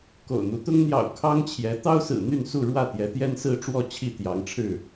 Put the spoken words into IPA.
ko̰˨˩ʊ̯n̪u˨˦t̪ʊ˦ŋ n̪jɑ̰˨˩ʊ̯ kʰɑ˦ŋt͡ɕʰjɛ˨˦ t̪ɑ˦ʊ̯sɹ̩˨˩ n̪y˥˨nsu˥˨ɻwä˥˨ t̪jɛ˨˦t̪jɛ˦nsɹ̩˦ʈ͡ʂwɔ˥˨ t͡ɕʰi˥˨t̪jɑ˨˦ŋ ʈ͡ʂʰɻ̩˥˨

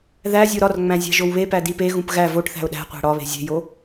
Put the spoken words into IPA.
ðæzʲo ɾɒrŋ͡mæ̃ zʲæ̤ʒowβepæ dipeɣũp ɣæ voʈθæ̤ʊ̯ ɗæ̤ qʷæ̤ɽɒβe̤ zʲe̤jo

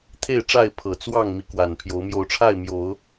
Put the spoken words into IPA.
t̪ʰe˥˨ɪ̯ʈ͡ʂa˥˨ɪ̯ pʰɤ˨˩t͡swɑ˥˨ŋ mi˨˦kwa˨˩n pʰjo˨˦ʊ̯ mjo˨˦ʊ̯ʈ͡ʂʰa˥˨ɪ̯mjo˨˦ʊ̯

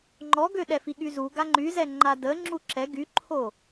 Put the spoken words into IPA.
ŋ͡ǃɔɡøɗɛfi ɠyzu ɡaŋ͡ǃyzɛ ŋ͡ǃadə ŋ͡ǁuǁɛ ɡyǃʰo

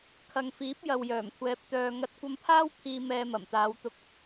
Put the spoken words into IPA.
kʰɐ˨ŋfiː˨˥p̚ jɐ˨wjœː˨˩mkʷʰɛː˨˥p̚ t̪œː˨ ŋɐ˧t̚ kʷɐ˧mpʰaː˥w pʰiː˧ mɛː˧mɐ˨˩mt̪aː˨˧wt̪ʊ˧k̚

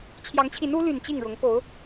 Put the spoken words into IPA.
t͡ɕʰjɑ˨˦ŋt͡ɕʰi˨˦n u˨˦ly˨˩n t͡ɕi˥˨ŋɻʊ˨˦ŋ po˨˦ʊ̯

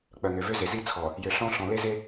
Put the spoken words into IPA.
k͡pœ˨ŋø˨vø˦ze˨ zi˦t͡sʰɔ˨ | jø˨ ɬɔ̃˦ ɬɔ̃˨le˦ze˦

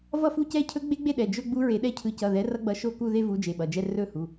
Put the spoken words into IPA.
vʌ˥˧fu˥˧cɛ˥˧ cʰɵ˦˥ɡ͡be˦˥ɡ͡be˥˧ɗɛ˩˧˩ d͡ʒɵ˥˧ ɡ͡bu˦˥ɹe˨˦ɗɛ˥˧ cʰɯ˨˦ cʌ˩˧˩ðɛ˨˦ rʌ˦˥ɡ͡bʌ˨˦ʃo˥˧ku˥˧ ðe˥˧vu˨˦ d͡ʒe˩˧˩ɓʌ˩˧˩d͡ʒɛ˥˧ rɵ˥˧hu˩˧˩

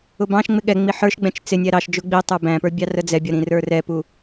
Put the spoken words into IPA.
ʊbɑ̃ʃŋ͡mɪ ɠɛŋ͡mi ħə˞ʃɡ͡bɛ̃t͡ʃ t͡sɪnʲæ ɾɑʃd͡ʒʊ ɡ͡bi tˤə˞bæ̃pə˞ bʲɑrəd͡zɛbʲʌ ɾĩrə˞rɛpu

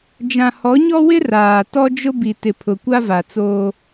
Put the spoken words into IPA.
d͡ʒã˨hɔ˨˦ɲɔ˦wɪ˦ raː˨ tɔ˦d͡ʒʊ˦ bi˨ tɪ˨pʰʊ˨kʷa˦va˨ t͡soː˦

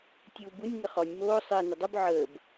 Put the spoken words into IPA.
tʲuːbunʲ ŋəχɔnʲ moː sˤɪː nədˤub ʕəːb

